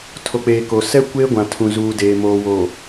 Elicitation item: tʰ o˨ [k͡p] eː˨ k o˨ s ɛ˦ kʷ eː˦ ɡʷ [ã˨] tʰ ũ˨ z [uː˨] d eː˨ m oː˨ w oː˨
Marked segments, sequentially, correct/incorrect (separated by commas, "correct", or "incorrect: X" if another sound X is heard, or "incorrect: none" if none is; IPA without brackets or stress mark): correct, correct, correct